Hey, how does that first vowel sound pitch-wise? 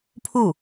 falling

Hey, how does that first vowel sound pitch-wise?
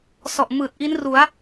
low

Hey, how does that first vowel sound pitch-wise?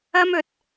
high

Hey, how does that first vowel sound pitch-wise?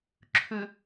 low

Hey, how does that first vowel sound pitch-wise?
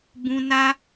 high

